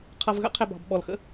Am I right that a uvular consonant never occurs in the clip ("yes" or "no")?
no